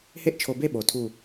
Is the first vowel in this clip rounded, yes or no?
no